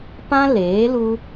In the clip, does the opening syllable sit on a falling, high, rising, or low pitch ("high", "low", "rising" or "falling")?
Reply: high